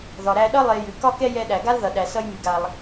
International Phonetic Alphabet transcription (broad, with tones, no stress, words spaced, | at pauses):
ðɒ˩ɾæ˧ɗʌ˥ lˠe˧jʉ˩ kɒ˥kɛ˥jɛ˧ ɗæ˩ɡa˥lðʌ˩ ɗæ˩sʌ˧jmʉ˩ɡa˩lˠ